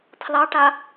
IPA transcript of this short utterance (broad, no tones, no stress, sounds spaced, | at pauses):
tʰ l ɑ ʈ a